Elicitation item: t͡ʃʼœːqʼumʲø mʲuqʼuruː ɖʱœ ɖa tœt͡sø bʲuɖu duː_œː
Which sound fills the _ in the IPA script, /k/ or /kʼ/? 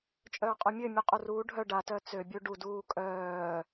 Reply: kʼ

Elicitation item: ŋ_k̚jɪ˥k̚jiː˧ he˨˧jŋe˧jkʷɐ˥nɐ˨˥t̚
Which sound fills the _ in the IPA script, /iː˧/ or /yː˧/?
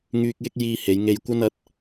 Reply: yː˧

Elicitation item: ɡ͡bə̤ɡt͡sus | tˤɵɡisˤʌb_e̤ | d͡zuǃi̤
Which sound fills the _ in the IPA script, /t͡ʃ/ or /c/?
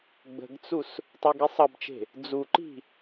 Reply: t͡ʃ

